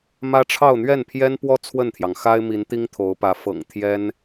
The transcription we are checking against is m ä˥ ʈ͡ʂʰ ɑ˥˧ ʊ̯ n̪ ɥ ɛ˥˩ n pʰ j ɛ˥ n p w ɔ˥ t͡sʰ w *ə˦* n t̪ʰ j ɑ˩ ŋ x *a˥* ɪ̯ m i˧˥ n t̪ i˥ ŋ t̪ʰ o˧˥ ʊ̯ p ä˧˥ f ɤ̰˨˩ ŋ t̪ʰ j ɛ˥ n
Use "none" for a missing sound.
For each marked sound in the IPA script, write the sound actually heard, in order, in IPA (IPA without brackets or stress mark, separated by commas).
ə˥˩, a˥